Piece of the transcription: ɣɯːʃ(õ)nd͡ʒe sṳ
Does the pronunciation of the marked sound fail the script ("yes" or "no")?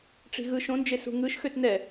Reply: no